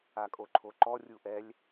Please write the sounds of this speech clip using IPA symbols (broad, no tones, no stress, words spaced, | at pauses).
akʼoǃʰoǃɔ rʲuʔɛlʲ